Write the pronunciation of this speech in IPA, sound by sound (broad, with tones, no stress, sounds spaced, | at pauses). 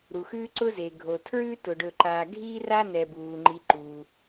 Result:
ɾ u˩ x ʉː˦ ǀ ʊ˦ z e˩ ɡʱ o˩ tʰ ɹ ʉː˥ t ʊ˩ ɖ ɵ˨ ǃ aː˨ ɡʱ iː˥ r a˦ n ɛ˩ b uː˩ ŋ͡ǃ i˨ ǃ u˩